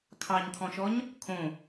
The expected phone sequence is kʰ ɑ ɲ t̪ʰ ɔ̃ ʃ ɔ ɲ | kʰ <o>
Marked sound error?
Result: yes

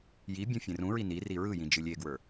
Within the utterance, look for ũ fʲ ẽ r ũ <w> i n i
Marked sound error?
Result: yes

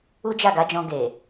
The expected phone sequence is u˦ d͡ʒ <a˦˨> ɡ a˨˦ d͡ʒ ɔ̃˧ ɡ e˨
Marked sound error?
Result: no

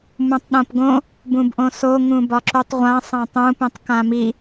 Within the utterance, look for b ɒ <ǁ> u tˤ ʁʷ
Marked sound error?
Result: no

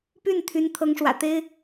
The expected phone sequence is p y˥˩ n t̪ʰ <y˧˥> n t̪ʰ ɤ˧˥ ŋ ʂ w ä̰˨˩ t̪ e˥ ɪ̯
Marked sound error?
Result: no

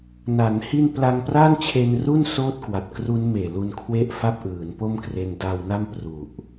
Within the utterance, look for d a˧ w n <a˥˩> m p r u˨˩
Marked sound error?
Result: no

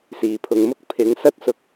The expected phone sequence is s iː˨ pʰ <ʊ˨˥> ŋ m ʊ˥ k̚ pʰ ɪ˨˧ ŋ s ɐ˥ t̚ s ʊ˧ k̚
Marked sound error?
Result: yes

